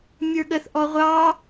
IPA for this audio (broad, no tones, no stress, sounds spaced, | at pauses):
mʲ ə˞ ɠ ə θ ʔ ɔ ʁʷ ɑ